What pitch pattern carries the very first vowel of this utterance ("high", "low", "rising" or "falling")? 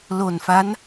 low